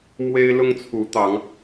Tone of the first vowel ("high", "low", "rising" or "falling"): high